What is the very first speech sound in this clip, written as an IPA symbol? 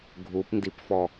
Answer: ɡʱ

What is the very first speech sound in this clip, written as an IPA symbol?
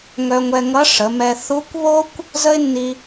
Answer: ŋ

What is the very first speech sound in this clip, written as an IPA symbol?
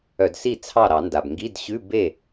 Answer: œ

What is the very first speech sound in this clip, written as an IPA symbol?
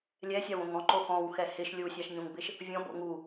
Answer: lʲ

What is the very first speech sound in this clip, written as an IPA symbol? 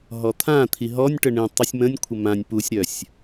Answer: ɦ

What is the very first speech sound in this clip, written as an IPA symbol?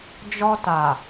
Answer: d͡ʒ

